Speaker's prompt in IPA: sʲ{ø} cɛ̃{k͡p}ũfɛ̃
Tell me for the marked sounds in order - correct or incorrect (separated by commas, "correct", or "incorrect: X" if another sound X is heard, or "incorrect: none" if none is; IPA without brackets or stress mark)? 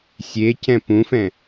incorrect: e, incorrect: p